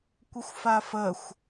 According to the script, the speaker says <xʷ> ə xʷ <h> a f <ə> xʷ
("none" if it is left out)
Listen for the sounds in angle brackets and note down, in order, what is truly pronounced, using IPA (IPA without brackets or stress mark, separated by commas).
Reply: kʷ, f, ə